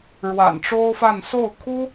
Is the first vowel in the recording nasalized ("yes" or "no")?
no